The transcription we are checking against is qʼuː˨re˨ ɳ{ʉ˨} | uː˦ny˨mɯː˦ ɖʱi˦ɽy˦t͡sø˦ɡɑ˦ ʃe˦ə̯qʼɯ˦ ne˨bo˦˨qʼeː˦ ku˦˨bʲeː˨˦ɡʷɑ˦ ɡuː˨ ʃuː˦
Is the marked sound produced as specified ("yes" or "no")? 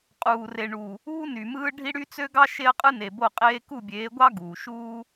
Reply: no